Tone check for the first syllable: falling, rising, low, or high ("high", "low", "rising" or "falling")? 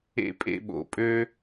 high